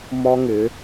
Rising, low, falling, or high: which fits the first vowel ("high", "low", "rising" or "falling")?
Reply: high